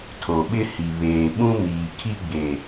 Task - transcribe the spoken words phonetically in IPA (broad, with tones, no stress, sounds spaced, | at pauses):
tʰ o˨ ɓ ɪ˦ h i˨ β eː˨ ɓ ũ˦ m iː˨ kʰ i˦ ɡ͡b e˨